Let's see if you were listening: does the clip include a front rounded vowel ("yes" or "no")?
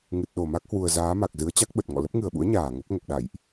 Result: no